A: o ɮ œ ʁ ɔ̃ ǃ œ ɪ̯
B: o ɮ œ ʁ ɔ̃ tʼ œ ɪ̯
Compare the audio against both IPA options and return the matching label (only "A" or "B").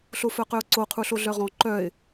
A